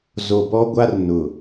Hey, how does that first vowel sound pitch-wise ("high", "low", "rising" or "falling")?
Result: low